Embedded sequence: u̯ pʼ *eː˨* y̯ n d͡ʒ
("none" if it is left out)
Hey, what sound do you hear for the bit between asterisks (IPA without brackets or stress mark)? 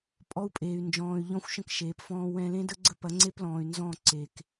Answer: eː˨